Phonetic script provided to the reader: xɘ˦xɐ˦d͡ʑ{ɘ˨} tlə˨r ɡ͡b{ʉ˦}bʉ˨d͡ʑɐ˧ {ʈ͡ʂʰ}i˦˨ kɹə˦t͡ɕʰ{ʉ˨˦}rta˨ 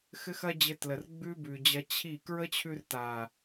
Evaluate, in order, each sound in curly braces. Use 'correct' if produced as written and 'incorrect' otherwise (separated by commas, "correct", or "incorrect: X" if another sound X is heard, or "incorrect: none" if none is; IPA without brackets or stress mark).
incorrect: ɘ˧, correct, incorrect: t͡ɕʰ, incorrect: ʉ˧